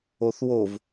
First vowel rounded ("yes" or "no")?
yes